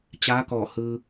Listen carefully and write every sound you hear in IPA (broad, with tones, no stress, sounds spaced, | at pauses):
t͡ɕ aː˧˥ k ɔː˧˩ h ɯː˧